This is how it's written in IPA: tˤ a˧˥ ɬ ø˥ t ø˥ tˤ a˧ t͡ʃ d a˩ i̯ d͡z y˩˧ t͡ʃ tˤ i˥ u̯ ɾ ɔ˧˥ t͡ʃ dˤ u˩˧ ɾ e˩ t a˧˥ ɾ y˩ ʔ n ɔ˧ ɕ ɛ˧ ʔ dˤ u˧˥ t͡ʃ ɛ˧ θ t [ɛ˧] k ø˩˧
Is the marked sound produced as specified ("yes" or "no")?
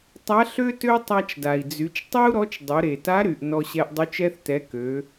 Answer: no